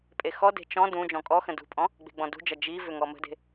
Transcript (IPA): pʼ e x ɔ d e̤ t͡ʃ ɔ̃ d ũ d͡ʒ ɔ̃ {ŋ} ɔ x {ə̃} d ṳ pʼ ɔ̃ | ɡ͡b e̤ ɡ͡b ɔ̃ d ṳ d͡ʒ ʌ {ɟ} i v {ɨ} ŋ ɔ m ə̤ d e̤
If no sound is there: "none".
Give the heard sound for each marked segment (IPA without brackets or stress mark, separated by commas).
kʼ, ə̃, d͡ʒ, ʏ